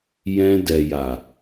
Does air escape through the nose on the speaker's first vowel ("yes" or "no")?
yes